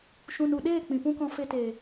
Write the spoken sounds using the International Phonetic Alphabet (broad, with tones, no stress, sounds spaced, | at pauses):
ʃ ũ˨ n u˨ ɗ eː˦˨ k͡p ĩ˨ p ũ˦ k ɔ̃˧ f e˧ t eː˨